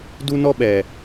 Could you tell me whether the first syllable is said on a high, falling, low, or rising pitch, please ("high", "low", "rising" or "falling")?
high